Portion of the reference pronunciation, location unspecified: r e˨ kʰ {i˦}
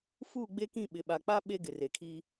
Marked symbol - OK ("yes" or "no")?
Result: yes